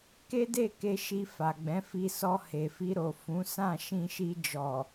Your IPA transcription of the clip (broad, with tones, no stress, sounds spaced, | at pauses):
k e˦ d e˦˨ k e˧ ʃ i˧ f a˨ ɡ͡b ɛ̃˨˦ f i˧ s ɔ˧ h e˨ f i˧ ɾ o˨ f ũ˨˦ s ã˦˨ ʃ ĩ˧ ʃ i˧ d͡ʒ ɔ˨